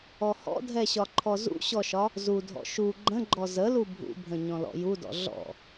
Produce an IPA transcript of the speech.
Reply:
ɔ h ɔ̰ dʱ ɛ ɕ ɒ ǃʰ ɔ z ṵ ɕ ɔ ʃ ɒ | z u dʱ ɔ̰ ʃ u ɡ͡ǃ ə̃ ɡ͡ǃ ɔ z ə l u bʱ ṵ bʱ ə̃ ɲ ɔ̃ l ɔ̰ j u d ɔ̰ ɮ ɔ̰

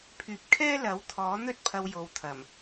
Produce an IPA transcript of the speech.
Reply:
pʰ yː˨ p̚ kʰ ɛː˥ l ɐ˨˥ w t̪ʰ ɔː˨˥ n̪ ɵ˥ t̚ pʰ ɐ˧ w j o˨ w t̪ʰ ɐ˨˩ m

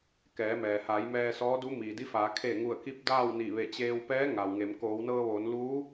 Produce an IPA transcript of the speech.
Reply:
k ɛː˩˧ m ɛː˩ h aː˩˧ j m ɛː˧ s ɔː˧˥ d u˧˥ m iː˩ d i˧˥ f aː˩˧ kʰ eː˧˩ ŋ u˧˩ ə̯ k i˧˥ p̚ d aː˥˨ w n i˧˩ ʋ e˧˩ t͡ɕ eː˧ w p ɛː˧˥ ŋ a˩ w ŋ e˩˧ m k oː˩˧ w n ɤː˧ ʋ oː˩˧ n l uː˧˥

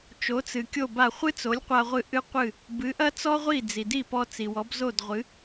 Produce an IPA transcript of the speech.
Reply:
t͡ʃ o˩˥ t͡s ɨ˩ kʲ o˥˩ b a˥˩ χʷ ɨ˥ t͡s o˩˥ lʲ qʷ a˧ ʁʷ ɨ˧ ʔ ɨ˥ qʷ ɨ˥˩ | b ɨ˩˥ ʔ ɐ˥ t͡s ɔ˥ ʁʷ i˥˩ d͡z i˩ d i˥˩ p ɔ˧ t͡s i˩ w ɔ˩˥ b z o˥˩ d ʁʷ ɨ˩˥

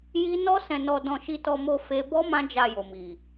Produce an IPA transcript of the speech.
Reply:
j i˦ n ɔ˦ s ɛ̃˧ n ɔ˧ d ɔ̃˧ ʃ i˧ t ɔ˧ m o˧ f e˦ b ɔ˦ m ã˦ d͡ʒ a˧ j o˨ m i˨

